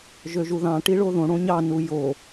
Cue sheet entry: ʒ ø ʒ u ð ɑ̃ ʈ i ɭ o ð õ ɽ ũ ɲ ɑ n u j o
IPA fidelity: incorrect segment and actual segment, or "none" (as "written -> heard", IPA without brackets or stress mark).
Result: ũ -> õ